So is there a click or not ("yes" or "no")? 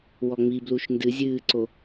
yes